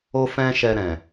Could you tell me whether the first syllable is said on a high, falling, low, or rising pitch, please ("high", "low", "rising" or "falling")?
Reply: high